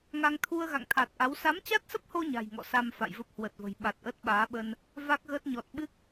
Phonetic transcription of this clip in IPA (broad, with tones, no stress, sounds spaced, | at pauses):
ŋ a˧ ŋ t̪ʰ u˧ ə̯ ɣ a̰˧˨ ŋ t̪ʰ a˨˩ t̚ ʔ a˨˦ w s a˨˦ m t͡ɕ a˦˥ t̚ s ə˦˥ p̚ h o˧ ɲ a̤˨˩ j ŋ ɔ̰˧˨ s a˧ m f a̰˧˨ j v ə˦˥ p̚ h w ə˨˩ t̚ v ə̤˨˩ j ɓ a˨˩ t̚ ʔ ə˦˥ t̚ ɓ aː˨˦ ɓ ə˧ n | v a˦˥ k̚ ɣ əː˦˥ t̚ ɲ ɔ˨˩ t̚ ɓ ɨ˦˥ k̚